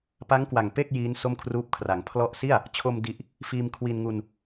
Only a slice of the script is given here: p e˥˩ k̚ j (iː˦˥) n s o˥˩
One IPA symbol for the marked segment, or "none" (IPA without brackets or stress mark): iː˦˥